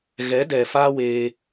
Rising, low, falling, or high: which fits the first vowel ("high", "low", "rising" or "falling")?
rising